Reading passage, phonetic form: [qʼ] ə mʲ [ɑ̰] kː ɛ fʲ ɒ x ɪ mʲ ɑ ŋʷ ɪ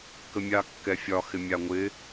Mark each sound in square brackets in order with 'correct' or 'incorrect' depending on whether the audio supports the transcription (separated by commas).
incorrect, incorrect